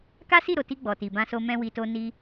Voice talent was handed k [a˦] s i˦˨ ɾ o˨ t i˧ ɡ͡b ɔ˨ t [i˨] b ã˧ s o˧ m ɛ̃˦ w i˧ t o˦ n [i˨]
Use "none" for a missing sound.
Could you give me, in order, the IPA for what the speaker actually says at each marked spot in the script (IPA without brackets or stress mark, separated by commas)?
a˦, i˨, i˦